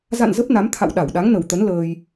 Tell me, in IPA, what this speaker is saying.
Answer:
za̰˧˨n zə˦˥p̚na˨˦m t̪ʰa̰˧˨w ɗa˧˩wɗa˨˦ŋnə˨˩wt̪ə˨˦n ləː˧j

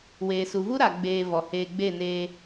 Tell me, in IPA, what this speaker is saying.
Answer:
weː˨su˨vu˦ ɾa˨ ɡ͡beː˧ vɔ˨heː˧ ɡ͡be˦˨neː˧

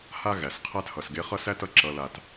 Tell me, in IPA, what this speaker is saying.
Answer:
ha˦ɣæ˨sqʰæ˦t hʌ˨sɡe˧ χʌ˦sæ˦tʌ˧ ǁʌ˦la˦t

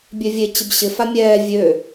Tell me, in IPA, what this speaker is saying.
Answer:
bʲøvʲe t͡ɕɪbɕɪ famʲɛː vʲø

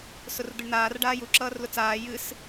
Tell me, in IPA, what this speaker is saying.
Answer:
sʊrd̪əɳn̪aːr ɖaːju ǁʌːrlʊt͡saː jɨs

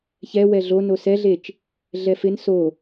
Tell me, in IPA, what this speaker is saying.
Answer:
çɛ wɛɮono sɛɮet͡ʃ | ɮɛfɪn so

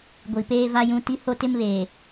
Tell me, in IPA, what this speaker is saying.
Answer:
ɡʷi˨peː˦va˦ jũ˦ ti˦ho˦ tɪ˦mβeː˨

